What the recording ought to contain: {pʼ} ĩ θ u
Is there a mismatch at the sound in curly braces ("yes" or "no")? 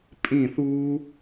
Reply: no